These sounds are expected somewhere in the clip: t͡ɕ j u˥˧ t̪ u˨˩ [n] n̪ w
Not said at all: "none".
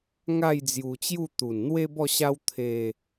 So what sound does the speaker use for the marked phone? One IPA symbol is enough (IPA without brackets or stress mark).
n